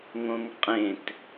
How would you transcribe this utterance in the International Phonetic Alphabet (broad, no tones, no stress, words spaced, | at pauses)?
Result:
ŋõŋqʼẽt